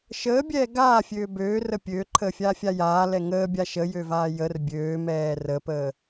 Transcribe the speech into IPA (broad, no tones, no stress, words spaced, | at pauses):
ʃəːbʲɛː ɡaːfʲøː bøːrə pʲøːǃʰəːfʲaːfʲa jaːlɛ ŋəːbʲa ʃəjøvaː jər bʲøːmɛː rəpəː